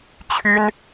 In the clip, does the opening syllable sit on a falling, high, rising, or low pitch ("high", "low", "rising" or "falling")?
high